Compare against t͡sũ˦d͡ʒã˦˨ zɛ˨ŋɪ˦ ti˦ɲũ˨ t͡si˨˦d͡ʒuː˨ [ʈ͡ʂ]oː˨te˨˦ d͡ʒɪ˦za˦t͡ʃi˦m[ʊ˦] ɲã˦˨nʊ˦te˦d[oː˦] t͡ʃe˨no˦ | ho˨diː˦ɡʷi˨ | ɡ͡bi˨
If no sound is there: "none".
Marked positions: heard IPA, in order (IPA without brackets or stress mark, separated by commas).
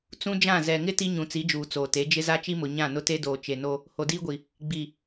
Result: t͡s, ʊ˨, oː˨